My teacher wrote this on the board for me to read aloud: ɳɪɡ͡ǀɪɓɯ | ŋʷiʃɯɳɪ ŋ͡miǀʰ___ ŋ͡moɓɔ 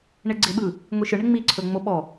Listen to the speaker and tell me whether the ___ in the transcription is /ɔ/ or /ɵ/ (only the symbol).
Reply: ɵ